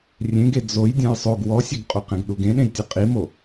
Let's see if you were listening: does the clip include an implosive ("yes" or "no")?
yes